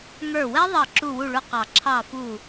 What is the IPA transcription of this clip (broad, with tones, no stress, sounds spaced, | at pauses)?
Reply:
ŋ ə˞˧˩ w ɛ˦˥ ðˤ ə˧˩ ǁ u˧˩ w u˧˩ ɭ ʊ˧˩ q ɑ˨˩˦ ǁʰ ɑ˧˩ f u˧˩